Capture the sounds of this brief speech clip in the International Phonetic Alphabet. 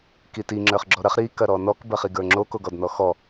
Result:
k i t i ŋ͡ǁ ə˞ χ ɡ͡ǁ ɔ ɾ ɐ χ ɾ i k ɐ ɾ ɔ n ɔ k b ɐ χ i ɡ ə˞ ŋ͡ǁ o k o ɡ ɔ d n ɔ x ɔ

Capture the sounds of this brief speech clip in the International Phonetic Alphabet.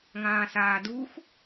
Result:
ŋ ãː s aː d u x

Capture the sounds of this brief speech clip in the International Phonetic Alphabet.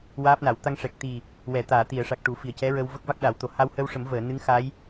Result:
w aː˦˥ p̚ n a˨˩˦ w t̪ a˧ ŋ ʂ ɛ˨˩ k̚ t̪ i˨˩ | w ɛ˨˩˨ t̪ aː˨˩˨ t̪ i˨˩˨ ə̯ ʂ a˨˩ k̚ ʈ u˨˩˦ f i˨˩ ə̯ c ɛ˧˥ ɹ ə˧ w v ə˦˥ k̚ v a˦˥ k̚ ɗ a˨˩˦ w t̪ o˨˩˦ h a˧ w h ə˧ w ʂ ə˨˩˦ m v əː˨˩˨ n ɨ˧˥ ŋ x a˧˥ j

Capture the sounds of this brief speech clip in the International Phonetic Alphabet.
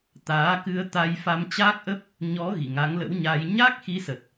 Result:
t̪ aː˨˦ k ɨ˧ ə̯ t̪ a˧ j f a˧ m t͡ɕ aː˦˥ k̚ ʔ ə˦˥ p̚ | ɲ ɔ˨˦ ɣ ḭ˧˨ ŋ a˨˦ ŋ l ə̰˧˥ w ɲ aː˧ j ɲ a˦˥ k̚ x i˨˦ s ə˨˩ t̚

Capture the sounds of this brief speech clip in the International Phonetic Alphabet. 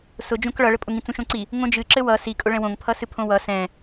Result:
s ʊ d͡ʒ õ k ɭ ʌ ɭ ɘ pʼ ʊ ŋ ĩ t͡s ũ ʃ õ ǀ i | ŋ õ d͡ʒ ɨ ǁ ɘ w ʌ s i kʼ ʊ ɭ ɛ̃ w õ ŋ pʰ ʌ s ɨ pʰ õ w ʌ s ɛ̃

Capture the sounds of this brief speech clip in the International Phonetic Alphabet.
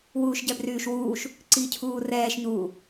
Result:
w uː ʃ ɟ ɛ b r yː ʃ w uː ʃ | ǀ i cʰ uː r ɛː ʃ ɲ uː

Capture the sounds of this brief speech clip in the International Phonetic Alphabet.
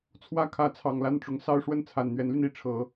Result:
t͡sʰ w ä˥˩ kʰ ä˧˥ t͡sʰ ɑ˨˩ ŋ l a˥˩ n ʈ͡ʂ ʊ˧˥ ŋ s ɑ˥ ʊ̯ ʂ w ə˥˩ n t͡sʰ a˨˩ n n̪ ɥ ɛ˧˥ n l y˧ n i˥˩ ʈ͡ʂʰ ɤ˨˩˦

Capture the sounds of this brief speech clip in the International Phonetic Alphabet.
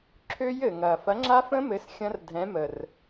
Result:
ǁʰ ø˦˥ j ɘ˨˩ ŋ ɐ˨˩ f ɐ˨˥ ŋ͡ǁ a˦˥ f ə̃˦˥ m ɘ˨˥ s xʲ ɐ̃˦˥ r dʱ ɛ̃˨˥ m ə˨˩ r

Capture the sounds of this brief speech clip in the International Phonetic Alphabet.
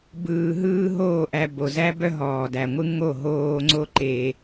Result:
b ɯː˨ ɦ ɯː˧ ɦ oː˦˨ ʔ æ˧ b o˨ z æ˦ b œ˦ ɦ ɔː˨ d æ˨ ŋʷ ɯ˦ ŋ o˦˨ ɦ oː˧ ŋ͡ǀ o˦ ǃ e˧

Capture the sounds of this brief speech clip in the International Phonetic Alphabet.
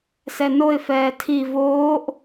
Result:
s ɛ n o ɪ̯ f ɛː tʰ i v oː ʔ

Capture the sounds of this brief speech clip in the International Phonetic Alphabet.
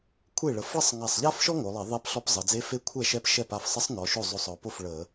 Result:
kʷʰ e˥˩ ɭ ə˩˧ f ɭ ə˥ sˤ ŋ a˧˩ sˤ ʎ a˥ f ʃ ɔ˥ ŋ o˩˧ lˠ e˧˩˧ ðˤ e˧˥ p ɬ ɔ˧˥ p zˤ ə˩˧ d͡z e˧˥ f e˧˥ kʷʰ ɛ˥˩ ʃ ɛ˧˥ p ʃ ɛ˥˩ p a˥˩ f sˤ ə˧˥ sˤ n ɔ˩˧ ʃ o˥˩ zˤ o˧˩ sˤ ɔ˩˧ p o˥˩ f ɭ ə˧˩˧

